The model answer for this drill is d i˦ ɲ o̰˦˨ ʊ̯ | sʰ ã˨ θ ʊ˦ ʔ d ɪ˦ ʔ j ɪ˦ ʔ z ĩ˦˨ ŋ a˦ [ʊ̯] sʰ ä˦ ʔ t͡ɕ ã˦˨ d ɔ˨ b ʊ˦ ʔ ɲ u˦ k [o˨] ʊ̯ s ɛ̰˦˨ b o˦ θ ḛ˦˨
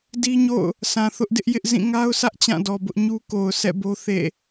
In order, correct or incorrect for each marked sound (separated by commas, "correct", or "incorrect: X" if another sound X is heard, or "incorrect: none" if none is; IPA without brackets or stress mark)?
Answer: correct, correct